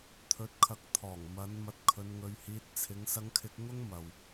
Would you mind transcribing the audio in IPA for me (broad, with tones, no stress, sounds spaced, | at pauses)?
t̪ʰ ɵ˨˥ t̚ kʰ ɐ˨˥ k̚ t̪ʰ ɔː˨˩ ŋ m ɐ˨˧ n m ɐ˧ t̚ kʰ ɵ˧ n ŋ ɵ˧ ɥ h iː˧ t̚ t͡sʰ ɪ˨˧ ŋ s ɐ˧ ŋ kʰ ɪ˧ k̚ ŋ ʊ˥ ŋ m ɐ˨ w